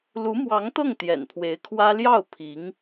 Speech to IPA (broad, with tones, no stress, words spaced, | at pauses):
lu˧˥mwɑ˧˥ŋt̪ɤ˥˩ŋ t̪jɛ̰˨˩npʰwe˧˥ɪ̯kʰwä˥ ljɑ˥˩ʊ̯ pʰi˧˥ŋ